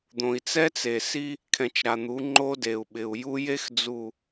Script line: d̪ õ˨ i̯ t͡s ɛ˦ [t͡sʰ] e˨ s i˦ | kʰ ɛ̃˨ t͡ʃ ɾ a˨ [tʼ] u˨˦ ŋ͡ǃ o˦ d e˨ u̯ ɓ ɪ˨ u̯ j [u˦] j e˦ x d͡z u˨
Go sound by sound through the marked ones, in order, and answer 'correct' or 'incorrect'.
incorrect: t͡s, incorrect: n̪, correct

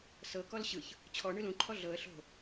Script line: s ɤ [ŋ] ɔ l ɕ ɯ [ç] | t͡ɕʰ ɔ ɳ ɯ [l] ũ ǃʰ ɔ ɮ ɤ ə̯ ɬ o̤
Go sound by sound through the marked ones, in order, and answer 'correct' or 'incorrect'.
incorrect: k, correct, correct

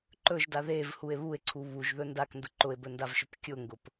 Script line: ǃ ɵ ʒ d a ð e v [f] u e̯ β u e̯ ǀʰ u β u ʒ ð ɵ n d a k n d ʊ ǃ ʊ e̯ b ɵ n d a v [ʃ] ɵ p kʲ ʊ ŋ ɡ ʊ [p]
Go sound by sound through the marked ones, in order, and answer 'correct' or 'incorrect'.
incorrect: h, correct, correct

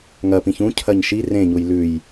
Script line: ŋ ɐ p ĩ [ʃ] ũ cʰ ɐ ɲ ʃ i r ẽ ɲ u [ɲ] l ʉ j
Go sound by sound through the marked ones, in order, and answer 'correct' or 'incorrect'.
incorrect: ç, incorrect: j

